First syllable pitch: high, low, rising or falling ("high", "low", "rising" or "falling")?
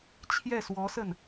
falling